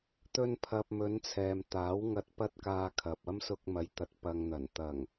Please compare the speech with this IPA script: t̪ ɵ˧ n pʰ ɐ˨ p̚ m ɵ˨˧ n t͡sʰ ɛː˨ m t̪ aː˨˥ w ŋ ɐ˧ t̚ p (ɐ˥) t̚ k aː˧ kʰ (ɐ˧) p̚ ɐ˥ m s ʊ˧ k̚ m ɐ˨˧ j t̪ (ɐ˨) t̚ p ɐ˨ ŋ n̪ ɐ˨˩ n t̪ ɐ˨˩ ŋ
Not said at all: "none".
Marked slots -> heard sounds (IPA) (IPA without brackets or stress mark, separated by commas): ɐ˥, ɐ˨, ɐ˨